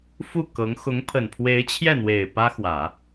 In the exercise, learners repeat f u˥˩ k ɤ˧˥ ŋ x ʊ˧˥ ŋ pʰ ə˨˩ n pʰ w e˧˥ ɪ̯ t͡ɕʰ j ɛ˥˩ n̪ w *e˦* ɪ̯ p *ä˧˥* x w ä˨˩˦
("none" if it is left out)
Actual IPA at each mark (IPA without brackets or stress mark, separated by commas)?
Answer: e˨˩, ä˥